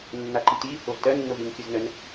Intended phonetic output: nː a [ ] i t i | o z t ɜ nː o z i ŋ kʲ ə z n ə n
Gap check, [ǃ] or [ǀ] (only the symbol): ǃ